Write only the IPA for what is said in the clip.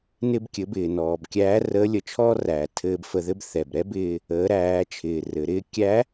n ɪ˧ b kʲ ɘ˩˧ b ɪː˩ n ɔː˩ b kʲ æː˧˥ r əː˧˥ lʲ ə˩˧ t͡ʃʰ ɔː˥ r æː˩ tʰ ɘː˧ b f ə˧ ð ɘ˥ b θ ɛ˩ b ɾ ɛ˥ b ɪː˧ | əː˩˧ ɾ æː˩˧ t͡ʃʰ ɪː˩ r ɘ˩˧ ɾ ɪː˧˥ kʲ æ˧˥

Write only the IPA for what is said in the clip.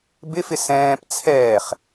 b ɪ f ɪ s ɛ̃ː p t͡sʰ ɛː χ

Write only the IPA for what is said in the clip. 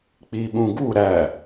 k͡p i ɓ ũ ɡ u ɾ æ

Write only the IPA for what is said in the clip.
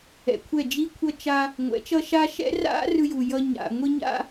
ɛ̰˨ kʷʰ ɛ˦˨ d͡ʒ i˦ kʷʰ ʌ˦ t͡ʃ a˦ | ŋʷ ɛ̰˨˦ t͡ʃ ʌ˦ ʃ a˦ ʃ ɛ̰˦ r a̰˦ r ɯ˦ j u˨ j ʌ˦ ɲ a̰˨ ŋʷ i˦ ɲ a̰˦

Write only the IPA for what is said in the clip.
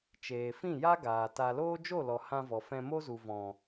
t͡ʃ eː˨ f ĩ˦˨ j a˦ ɡ aː˨ t a˧ l oː˦ d͡ʒ o˦˨ l ɔ˨ h ã˧ v ɔ˨ f ɛ̃˧ m o˦ z u˨ v ɔ̃˨

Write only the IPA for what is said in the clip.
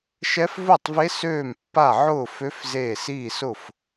ʃ ɛ˧˥ f v ʊː˥˩ tˤ v e˧˥ s øː˥˩ m pː a˥˩ ʕ ʊː˥˩ f ø˧˥ f z eː˥˩ s iː˥˩ s ʊ˥˩ f

